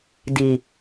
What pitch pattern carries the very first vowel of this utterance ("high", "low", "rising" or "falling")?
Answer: low